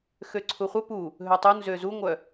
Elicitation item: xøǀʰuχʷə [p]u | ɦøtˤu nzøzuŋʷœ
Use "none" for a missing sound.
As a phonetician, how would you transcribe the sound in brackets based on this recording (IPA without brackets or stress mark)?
p